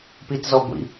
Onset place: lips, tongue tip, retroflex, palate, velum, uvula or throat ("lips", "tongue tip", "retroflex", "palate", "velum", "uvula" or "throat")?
lips